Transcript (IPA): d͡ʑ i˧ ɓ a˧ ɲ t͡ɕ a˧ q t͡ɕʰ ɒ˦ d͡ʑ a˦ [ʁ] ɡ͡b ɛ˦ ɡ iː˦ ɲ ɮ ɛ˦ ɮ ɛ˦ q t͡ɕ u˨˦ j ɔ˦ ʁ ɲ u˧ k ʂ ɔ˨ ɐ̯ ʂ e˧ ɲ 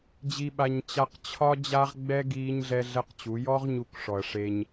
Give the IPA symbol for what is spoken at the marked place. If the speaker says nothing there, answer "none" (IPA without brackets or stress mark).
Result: ʁ